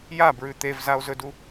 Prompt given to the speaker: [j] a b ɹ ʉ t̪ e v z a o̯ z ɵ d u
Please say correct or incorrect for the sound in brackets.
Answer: correct